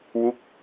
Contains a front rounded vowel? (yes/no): no